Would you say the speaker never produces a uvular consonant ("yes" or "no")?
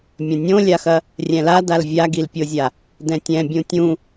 yes